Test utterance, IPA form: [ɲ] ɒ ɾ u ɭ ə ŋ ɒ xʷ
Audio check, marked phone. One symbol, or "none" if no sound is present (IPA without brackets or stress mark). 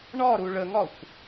ɳ